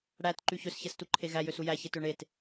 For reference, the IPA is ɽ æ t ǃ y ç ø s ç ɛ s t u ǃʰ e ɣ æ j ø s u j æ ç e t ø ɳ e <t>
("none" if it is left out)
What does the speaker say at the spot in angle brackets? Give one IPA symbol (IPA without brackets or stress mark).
t